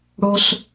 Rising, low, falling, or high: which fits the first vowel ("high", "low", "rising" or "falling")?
high